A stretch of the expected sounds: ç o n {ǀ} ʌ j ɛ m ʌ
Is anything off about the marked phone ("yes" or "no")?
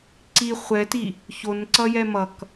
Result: no